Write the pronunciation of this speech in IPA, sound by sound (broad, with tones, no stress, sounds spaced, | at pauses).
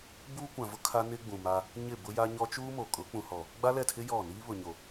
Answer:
b uː˦ kʷ ã˨ v ʊ˦ kʰ a˦ n ɪ˦ ɡ͡b ũ˨ m a˦ | ɲ ɪ˦˨ b ʊ˦ j a˦ ɲ ɔ˦ t͡ʃ uː˦ m o˨ kʼ ʊ˨˦ k͡p ũ˨ h ɔ˨ | ɡ͡b a˦ l ɛ˦˨ tʰ ɪ˦ j ɔ˦˨ n iː˦ β ʊ˨ ɲ o˨